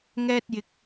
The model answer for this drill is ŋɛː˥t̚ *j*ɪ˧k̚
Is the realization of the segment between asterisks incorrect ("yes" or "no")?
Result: no